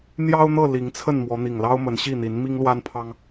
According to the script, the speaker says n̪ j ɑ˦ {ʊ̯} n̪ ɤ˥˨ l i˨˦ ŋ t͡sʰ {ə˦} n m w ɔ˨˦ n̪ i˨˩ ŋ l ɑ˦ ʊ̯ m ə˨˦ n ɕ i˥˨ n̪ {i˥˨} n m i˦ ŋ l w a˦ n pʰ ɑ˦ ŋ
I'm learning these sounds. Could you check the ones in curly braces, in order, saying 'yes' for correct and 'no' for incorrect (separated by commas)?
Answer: yes, no, no